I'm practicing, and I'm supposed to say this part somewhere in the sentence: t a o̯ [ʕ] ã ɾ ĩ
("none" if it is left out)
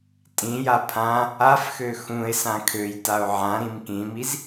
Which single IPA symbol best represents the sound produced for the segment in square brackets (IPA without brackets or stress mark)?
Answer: ʕ